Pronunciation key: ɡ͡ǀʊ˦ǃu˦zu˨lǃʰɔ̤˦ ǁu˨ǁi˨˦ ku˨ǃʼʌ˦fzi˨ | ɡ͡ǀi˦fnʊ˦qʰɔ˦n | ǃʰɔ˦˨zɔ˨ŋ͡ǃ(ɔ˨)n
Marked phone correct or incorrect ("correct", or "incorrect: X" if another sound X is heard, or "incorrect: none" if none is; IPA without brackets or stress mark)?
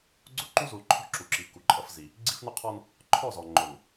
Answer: incorrect: ʊ˨